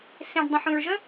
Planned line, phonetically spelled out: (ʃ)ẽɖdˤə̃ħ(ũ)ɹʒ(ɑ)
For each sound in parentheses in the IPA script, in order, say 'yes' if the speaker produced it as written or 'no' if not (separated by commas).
no, yes, no